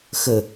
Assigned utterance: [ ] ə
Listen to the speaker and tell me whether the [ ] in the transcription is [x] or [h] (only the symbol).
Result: x